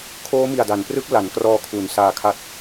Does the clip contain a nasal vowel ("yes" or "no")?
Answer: no